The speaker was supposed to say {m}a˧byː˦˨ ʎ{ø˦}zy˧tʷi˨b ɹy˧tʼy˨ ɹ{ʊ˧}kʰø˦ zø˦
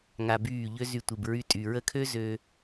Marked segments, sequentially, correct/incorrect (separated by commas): incorrect, correct, incorrect